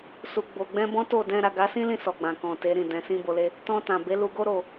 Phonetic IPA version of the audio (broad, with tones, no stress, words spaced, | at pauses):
su˨ɡ͡bo˨ɡ͡bɛ̃˧ bɔ̃˦to˦˨dɛ̃˧ ɾa˨ɡa˨˦sĩ˦lĩ˧ sɔ˨ɡ͡bã˨kɔ̃˨ te˨˦ɾĩ˦˨ dɛ̃˨sĩ˧bo˨le˧ | tɔ̃˧tã˨ be˨˦ lu˧ɡo˦ ɾo˦˨